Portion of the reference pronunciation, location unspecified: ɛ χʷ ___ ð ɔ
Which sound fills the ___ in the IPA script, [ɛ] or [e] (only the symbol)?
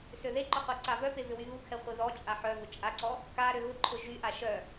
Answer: e